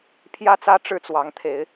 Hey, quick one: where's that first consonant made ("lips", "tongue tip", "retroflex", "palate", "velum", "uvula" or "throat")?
lips